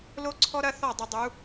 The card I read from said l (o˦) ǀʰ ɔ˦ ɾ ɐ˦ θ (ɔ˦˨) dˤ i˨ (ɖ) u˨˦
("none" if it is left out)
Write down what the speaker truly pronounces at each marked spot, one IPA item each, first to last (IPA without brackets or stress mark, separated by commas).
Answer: o˦, ɔ˦˨, dˤ